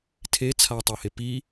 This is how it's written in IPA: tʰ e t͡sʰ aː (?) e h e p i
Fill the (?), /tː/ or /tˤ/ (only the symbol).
tˤ